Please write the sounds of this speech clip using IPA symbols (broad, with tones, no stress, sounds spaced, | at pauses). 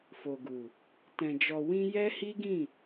f o˨ ɡ u˨ | t ɛ̃˨ d͡ʒ ɔ˨ w ĩ˧ j ɛ˦ h i˦ ɡ ĩ˦˨